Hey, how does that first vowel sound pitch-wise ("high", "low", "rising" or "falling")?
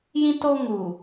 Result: high